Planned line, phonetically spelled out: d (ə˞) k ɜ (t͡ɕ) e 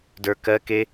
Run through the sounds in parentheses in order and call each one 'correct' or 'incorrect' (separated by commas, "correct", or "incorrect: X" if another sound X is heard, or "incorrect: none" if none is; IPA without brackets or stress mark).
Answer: correct, incorrect: k